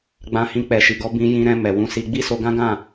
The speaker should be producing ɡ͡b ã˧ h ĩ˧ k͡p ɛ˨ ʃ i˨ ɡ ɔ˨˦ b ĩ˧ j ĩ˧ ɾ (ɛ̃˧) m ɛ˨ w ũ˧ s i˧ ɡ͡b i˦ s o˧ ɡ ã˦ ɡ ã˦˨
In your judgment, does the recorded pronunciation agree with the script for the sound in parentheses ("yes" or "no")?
yes